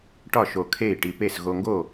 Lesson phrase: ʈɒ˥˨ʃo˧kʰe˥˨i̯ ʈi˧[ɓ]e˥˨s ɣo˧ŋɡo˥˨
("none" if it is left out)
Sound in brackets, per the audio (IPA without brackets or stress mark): p